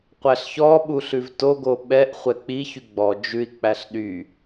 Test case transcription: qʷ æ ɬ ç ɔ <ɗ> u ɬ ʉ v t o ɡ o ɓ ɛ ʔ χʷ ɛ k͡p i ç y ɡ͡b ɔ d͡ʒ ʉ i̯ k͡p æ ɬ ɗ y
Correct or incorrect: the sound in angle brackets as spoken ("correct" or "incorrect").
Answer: incorrect